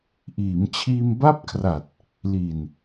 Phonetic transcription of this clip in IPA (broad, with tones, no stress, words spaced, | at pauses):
ʔiː˩˦mt͡ɕʰiː˧m ba˥˩p̚kʰra˨˩t̚ | li˨˩n